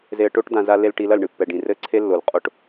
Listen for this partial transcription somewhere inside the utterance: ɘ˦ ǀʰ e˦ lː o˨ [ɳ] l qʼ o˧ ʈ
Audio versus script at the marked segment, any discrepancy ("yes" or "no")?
yes